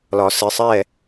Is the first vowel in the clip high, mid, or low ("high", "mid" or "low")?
low